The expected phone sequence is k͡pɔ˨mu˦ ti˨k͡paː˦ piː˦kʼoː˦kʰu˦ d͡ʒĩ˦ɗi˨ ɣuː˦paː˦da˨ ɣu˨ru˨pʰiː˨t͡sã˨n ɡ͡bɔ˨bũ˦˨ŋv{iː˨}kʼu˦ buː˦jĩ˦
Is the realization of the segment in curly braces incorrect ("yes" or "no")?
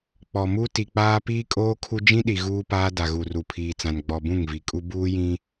yes